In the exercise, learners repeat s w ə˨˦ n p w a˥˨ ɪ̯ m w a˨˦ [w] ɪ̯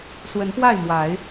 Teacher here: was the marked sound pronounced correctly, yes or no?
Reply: no